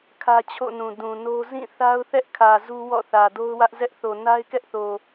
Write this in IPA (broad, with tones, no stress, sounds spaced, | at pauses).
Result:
kʰ ä˦ t͡ɕʰ o̰˦˨ n ũ˨ d ũ˨ n o˦ z ĩ˦˨ θ a˦ ʊ̯ θ ɛ˦ ʔ kʰ ä˨ z u˦ w ɔ̰˦˨ θ ä˨ d o˦ ʊ̯ w ä˦ ʔ z ɛ˦ ʔ θ o˨ n a˦ ɪ̯ k ɛ˦ ʔ θ o˨